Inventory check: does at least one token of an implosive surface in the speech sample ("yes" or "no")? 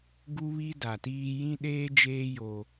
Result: yes